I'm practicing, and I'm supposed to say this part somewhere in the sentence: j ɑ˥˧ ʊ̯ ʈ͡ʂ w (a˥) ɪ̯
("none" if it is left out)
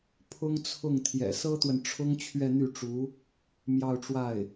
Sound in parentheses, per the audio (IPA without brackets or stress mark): a˥˩